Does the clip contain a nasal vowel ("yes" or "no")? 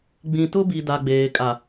yes